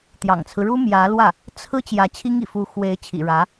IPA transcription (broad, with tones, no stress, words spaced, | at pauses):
t̪jɑ̰˨˩ŋt͡sʰɹ̩˦ɻu˥ mjä˧˥lwä˥˩ | t͡sʰɹ̩˥ t͡ɕjä˧˥t͡ɕʰi˥ŋḭ˨˩ fu˧˥xwe˧˥ɪ̯ t͡ɕʰḭ˨˩ɻä˧˥